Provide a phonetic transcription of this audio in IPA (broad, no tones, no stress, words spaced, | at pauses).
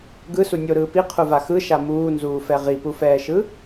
ɡɯsu nʲoɾɯː piqʰuva xɯʃa muːnzuːfɛ ʁipufɛːʃɯ